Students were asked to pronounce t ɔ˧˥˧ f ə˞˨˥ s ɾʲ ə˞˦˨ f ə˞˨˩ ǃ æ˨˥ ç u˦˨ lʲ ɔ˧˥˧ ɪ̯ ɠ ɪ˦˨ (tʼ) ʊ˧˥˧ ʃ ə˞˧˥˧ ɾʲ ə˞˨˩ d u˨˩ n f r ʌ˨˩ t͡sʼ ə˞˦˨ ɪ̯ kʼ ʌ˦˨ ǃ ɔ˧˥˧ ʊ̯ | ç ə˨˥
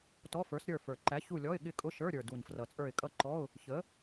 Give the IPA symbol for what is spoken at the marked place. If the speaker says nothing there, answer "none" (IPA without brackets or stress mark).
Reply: kʼ